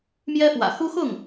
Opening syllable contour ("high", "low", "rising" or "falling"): high